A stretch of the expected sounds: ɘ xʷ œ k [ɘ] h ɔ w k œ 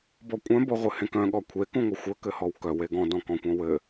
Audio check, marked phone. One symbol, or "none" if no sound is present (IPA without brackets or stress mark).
ɘ